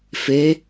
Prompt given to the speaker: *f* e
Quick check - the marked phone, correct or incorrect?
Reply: correct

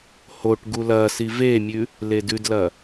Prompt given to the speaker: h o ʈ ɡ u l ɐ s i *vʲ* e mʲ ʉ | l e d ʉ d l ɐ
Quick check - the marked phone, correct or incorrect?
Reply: incorrect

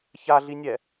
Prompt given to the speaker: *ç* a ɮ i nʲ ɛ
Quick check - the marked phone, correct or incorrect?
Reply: correct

